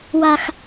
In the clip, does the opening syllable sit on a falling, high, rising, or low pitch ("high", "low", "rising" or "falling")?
low